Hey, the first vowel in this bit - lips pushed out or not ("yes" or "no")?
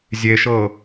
no